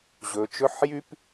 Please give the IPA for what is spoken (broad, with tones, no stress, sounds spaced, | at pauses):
ʑ ɵ˩˧ t͡ʃ ɵ˧˥˧ ħ j y˥ p